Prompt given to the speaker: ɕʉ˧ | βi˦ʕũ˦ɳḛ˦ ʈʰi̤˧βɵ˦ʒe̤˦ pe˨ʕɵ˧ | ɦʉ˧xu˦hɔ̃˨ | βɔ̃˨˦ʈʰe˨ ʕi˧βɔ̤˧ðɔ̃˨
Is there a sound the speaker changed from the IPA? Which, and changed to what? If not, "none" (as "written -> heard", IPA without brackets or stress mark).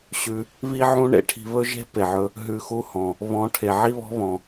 ð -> β